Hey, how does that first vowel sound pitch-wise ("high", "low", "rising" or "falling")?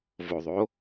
low